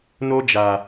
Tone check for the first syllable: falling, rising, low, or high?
high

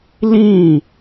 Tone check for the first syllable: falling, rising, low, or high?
falling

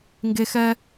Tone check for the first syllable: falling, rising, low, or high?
high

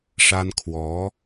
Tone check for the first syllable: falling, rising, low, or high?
high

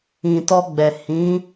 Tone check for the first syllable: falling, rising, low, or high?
low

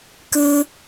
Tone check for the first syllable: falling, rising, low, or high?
low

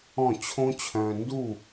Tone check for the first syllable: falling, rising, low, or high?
falling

